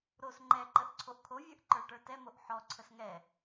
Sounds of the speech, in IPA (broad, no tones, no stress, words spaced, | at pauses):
ɾos ŋ͡ǃɛǃəʔ ǀʰoʔkʰovʲə˞ʔ ǃə˞ʈə˞tɛmoʔ ħɔǀʰəs ŋɛ